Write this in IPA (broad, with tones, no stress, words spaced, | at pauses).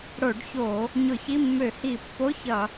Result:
ɽo˧˩˧ɖço˧˩˧ | ɲʊ˧˩˧çi˧˥˧mːø˧˩˧ hi˧˩˧pːo˧˥˧çʌ˧˩˧